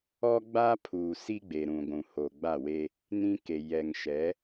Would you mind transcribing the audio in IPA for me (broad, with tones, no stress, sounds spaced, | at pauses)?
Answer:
ɔ˦ ɡ͡b aː˦ pʰ uː˨ s i˦ ɡ͡b e˨ ɾ ũ˨ ɡʷ ũ˨ h oː˨ ɡ͡b a˦˨ w e˦ | n ĩ˦ k e˨ j ɛ˨ ŋ ʃ ɛ˨˦